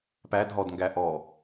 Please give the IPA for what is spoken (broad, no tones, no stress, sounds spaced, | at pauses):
p æ d ɦ ɔ d ŋ ɡ æ ʔ ɔ